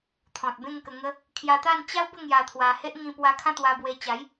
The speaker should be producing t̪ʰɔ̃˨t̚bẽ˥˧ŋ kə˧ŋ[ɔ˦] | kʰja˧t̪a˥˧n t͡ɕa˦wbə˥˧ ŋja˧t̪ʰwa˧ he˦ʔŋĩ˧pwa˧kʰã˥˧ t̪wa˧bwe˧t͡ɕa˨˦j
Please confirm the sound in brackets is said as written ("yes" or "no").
no